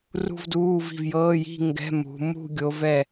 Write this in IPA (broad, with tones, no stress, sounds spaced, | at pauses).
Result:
r ṳ˥˧ v d uː˧˥˧ v i̤˥˩ v j ɤː˧˥˧ j i̤˥˧ ŋ ɡ ɛ̤˧˥˧ m ṳ˨˦ m ṳ˥˧ ɡʲ o˦˥ v ɛ˥˧